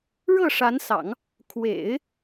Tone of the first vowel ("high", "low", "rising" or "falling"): falling